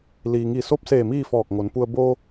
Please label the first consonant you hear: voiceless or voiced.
voiced